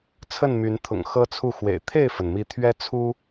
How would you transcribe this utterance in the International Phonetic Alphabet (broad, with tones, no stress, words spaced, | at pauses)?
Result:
t͡sʰə˥˨nmy˨˦nt̪ʰʊ̰˨˩ŋ xɤ˦t͡sʰu˥˨xwḛ˨˩ɪ̯ t̪ʰe˥˨ɪ̯fə˩nmi˨˦ t̪ʰɥɛ˦t͡sʰu˦